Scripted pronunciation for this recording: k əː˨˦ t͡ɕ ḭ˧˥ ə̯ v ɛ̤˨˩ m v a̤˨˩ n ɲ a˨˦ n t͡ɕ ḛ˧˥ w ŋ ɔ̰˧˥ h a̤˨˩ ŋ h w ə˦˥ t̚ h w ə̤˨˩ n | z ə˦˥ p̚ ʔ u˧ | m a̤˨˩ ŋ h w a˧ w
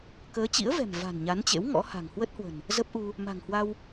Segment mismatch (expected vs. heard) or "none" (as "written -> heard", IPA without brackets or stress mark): none